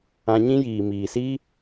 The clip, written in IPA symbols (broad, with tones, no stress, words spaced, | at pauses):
ã˧ɲĩ˦ jiː˨miː˨si˦